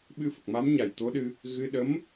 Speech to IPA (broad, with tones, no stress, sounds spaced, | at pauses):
ɓ ɨ˧ f ə˨˩ k̚ m a˧˥ m ɲ a˨˩ j t̪ o˧˥ ɗ ɨ˧ | ɣ ɨ˧ ɗ ə˧˥ m